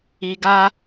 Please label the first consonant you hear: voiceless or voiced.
voiced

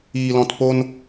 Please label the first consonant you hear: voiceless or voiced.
voiced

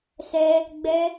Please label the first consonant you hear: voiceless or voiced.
voiceless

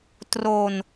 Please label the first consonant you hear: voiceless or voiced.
voiceless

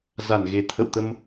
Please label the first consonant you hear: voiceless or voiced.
voiced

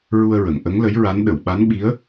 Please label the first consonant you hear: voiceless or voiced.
voiced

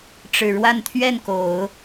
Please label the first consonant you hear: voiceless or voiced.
voiceless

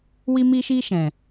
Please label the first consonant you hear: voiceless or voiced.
voiced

